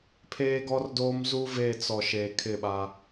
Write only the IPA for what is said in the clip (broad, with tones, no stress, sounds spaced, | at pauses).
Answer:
pʰ eː˦ ɡ ɔ˦ r d oː˦ m z u˦ v e˦˨ t͡s ɔ˨ ʃ e˨ kʰ ɪ˦˨ ɓ a˦